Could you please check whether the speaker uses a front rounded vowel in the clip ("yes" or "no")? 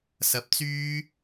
yes